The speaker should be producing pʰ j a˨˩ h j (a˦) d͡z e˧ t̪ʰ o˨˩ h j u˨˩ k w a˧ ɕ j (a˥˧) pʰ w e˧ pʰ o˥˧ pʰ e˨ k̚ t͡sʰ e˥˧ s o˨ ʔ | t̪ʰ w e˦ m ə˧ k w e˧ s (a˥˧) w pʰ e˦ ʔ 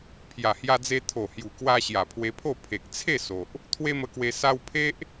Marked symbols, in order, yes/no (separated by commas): no, no, no